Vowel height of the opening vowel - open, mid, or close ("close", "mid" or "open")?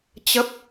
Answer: mid